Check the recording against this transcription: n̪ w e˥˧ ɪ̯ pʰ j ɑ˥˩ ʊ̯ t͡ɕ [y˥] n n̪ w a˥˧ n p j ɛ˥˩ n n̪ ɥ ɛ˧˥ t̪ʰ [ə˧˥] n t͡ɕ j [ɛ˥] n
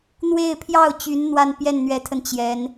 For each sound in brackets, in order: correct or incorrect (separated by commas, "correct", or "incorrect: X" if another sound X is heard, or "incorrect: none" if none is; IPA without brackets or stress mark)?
incorrect: y˧˥, incorrect: ə˧, incorrect: ɛ˧˥